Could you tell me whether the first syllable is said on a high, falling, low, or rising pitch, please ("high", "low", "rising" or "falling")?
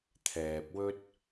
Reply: low